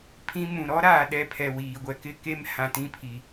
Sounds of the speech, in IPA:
pʰĩ˦mũ˨ ɾɔ˦ɾa˨ ɗɛ˦pʰɛ˨wiː˨ɡʷɛ˦ kɪ˦ke˦m hã˨tĩ˦pʰi˨

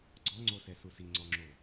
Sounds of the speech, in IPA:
ɡ͡ǀɔŋ͡ǀosɛsu siŋ͡ǀɔŋ͡ǁo

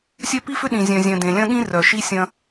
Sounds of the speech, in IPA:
sʲœ˦pi˦fʏ˦ɗĩ˨ zʲœ̃˨zʲœ̃˨ dẽ˨lʲɐ̃˦ɠĩ˦ rœ˨ʃi˦sʲɐ̃˦

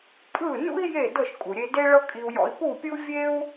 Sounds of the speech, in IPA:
pʼɯ˥˩nṵ˥i̯ je˥˩dɤ˥˩ʃ kʼu˩ɾʲe˧ de˥ɭɤ˥kʼi˧u̯jɔ̰˧i̯ pu˥˩pʲɯ˥u̯ vʲe˥u̯

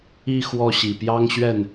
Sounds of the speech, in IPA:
i˥˧ xwɔ˥˩ɕi˨˩ pjɑ˥ŋɕɥɛ˥˩n

